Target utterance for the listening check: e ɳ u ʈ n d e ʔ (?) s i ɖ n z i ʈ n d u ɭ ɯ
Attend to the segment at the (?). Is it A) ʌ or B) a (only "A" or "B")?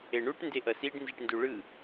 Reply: A